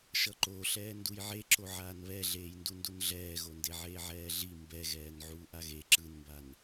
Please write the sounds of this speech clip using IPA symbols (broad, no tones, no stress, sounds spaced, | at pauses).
ʃ ʌ ǃ o ɬ ɛː n d u j ʕ e ǁ o ʕ aː n β ɛ ɮ eː j n d u n d u n ɮ ɛː ɣ o n d e ʕ eː ʕ ɛː ɮ i m b ɛ ɣ ɛː n ʕ uː ʔ a ɣ e ǁ ɯ n m b a n